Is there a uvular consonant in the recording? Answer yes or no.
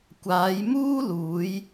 no